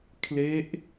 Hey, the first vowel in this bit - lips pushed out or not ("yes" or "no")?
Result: no